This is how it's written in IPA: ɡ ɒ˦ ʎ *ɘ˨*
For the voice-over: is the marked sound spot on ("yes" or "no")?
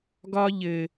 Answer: yes